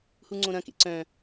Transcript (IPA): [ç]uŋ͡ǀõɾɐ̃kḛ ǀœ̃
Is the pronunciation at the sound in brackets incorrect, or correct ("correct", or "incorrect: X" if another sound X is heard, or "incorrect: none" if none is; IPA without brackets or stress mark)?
incorrect: h